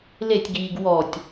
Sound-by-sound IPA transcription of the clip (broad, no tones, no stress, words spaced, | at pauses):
letʲɡiːɡ wɔtʲ